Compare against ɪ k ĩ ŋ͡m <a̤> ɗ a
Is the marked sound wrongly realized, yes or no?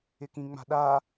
no